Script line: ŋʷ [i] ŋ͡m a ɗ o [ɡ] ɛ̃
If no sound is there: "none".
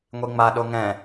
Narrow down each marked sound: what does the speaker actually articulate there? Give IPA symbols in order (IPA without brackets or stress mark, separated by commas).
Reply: i, ŋ